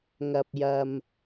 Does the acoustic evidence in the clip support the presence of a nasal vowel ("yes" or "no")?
no